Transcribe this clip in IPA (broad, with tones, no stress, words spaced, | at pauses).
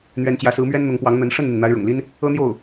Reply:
n̪ɥɛ˧˥nt͡ɕjä˧˥sɹ̩˧˥mɥɛ˥n n̪ʊ˧˥ŋpwɑ˧˥ŋn̪ə˧˥n ʂə˥˩nn̪i˩n n̪a˧˥ɪ̯ɻʊ̰˨˩ŋli˥n | ɤ˥n̪jo˥˩ʊ̯